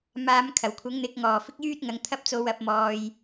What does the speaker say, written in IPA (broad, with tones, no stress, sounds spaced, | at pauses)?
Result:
m aː˨˧ m kʰ ɐ˨˩ w kʷʰ ɐ˨˥ ŋ n̪ ɪ˨˥ k̚ ŋ ɔː˨˩ f ɪ˥ k̚ j yː˥ t̚ ŋ ɐ˨˧ ŋ t̪ʰ ɐ˥ p̚ t͡s o˧ w ɐ˨˥ p̚ m ɔː˧ j